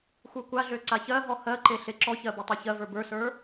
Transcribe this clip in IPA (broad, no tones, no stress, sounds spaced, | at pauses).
xʷ ə˞ kʷ a ɮ ø ǀ a ç ɜ ɦ ɔ h ɜ ǃ e ɬ e ǁ ɔ ç ɜ b ɔ tˤ ø ç ɜ v ə˞ b ə˞ s ə˞